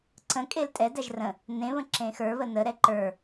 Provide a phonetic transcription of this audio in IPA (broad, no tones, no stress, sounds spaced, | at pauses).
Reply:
ǀ ə̃ kʼ e l tʼ ɛ d æ ʒ r ə̃ | n ẽ β ə̃ ǁ ẽ x ə˞ β ə n ə ɾ ɛ ǃ ə˞